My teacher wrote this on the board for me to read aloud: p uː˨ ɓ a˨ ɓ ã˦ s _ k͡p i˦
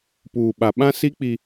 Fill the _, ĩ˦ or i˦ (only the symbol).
i˦